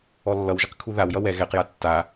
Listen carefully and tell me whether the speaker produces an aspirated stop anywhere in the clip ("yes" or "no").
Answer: yes